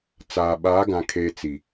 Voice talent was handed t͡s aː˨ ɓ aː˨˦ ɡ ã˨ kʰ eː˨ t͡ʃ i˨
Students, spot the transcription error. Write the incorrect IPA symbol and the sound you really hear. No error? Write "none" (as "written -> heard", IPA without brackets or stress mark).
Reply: t͡ʃ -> t͡s